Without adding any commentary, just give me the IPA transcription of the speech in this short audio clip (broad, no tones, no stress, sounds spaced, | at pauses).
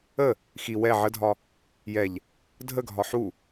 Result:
ə | x i w ɛ ʕ ə dʱ ɒ | j ɛ ʎ | dʱ ə ɡʱ ɒ ħ u